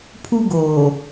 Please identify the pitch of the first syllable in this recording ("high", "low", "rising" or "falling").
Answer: high